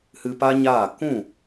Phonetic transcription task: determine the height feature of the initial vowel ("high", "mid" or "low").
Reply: high